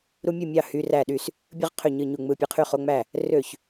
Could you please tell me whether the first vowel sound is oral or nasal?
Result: oral